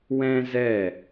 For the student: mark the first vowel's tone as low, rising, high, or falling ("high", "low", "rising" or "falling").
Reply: high